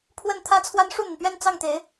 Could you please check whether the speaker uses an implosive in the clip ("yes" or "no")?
no